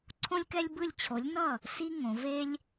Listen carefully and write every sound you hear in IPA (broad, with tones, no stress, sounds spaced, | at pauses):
ǀʰ õ˦ lʲ k ɛ˦ lʲ b ɯ˥˩ lʲ t͡ɕʰ o˨˥ lʲ n ʌ˥˩ | s i˦ ŋ õ˩˧ v e˦ lʲ